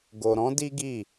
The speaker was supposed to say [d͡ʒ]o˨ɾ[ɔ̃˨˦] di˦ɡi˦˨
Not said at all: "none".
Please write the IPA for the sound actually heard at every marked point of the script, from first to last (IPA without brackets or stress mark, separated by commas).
ɡ, ɔ̃˨˦